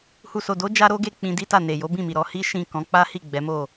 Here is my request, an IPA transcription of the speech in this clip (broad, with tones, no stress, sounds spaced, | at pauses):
h u˨ s o˨ d o˨˦ d͡ʒ a˦ ɾ o˦ ɡ e˦˨ k͡p ĩ˧ d i˦ t a˦˨ n e˨ j o˨˦ b ĩ˦˨ m i˨ ɾ ɔ˧ h i˦ ʃ ĩ˦˨ k ɔ̃˨˦ k͡p a˦ h i˦˨ ɡ͡b ɛ˨˦ m o˦˨